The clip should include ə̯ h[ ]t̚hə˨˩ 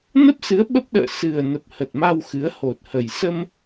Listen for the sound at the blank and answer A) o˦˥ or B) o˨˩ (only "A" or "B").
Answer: B